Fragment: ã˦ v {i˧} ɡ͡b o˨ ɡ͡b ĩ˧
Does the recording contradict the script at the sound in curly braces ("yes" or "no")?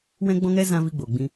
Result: no